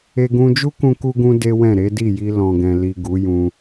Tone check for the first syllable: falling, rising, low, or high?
high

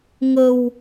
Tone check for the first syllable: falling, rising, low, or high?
low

